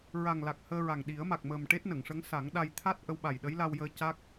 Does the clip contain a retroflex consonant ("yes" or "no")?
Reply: yes